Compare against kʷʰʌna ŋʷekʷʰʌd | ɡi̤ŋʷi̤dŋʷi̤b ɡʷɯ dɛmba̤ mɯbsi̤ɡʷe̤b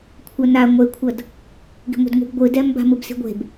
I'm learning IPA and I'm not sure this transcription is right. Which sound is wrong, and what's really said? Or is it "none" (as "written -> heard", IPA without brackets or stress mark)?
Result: none